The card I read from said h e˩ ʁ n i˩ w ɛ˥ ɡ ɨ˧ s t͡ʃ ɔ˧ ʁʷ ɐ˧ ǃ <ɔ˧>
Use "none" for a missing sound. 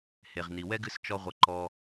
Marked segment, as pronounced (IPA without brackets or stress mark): ɔ˧